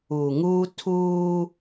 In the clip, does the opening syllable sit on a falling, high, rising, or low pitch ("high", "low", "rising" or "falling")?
low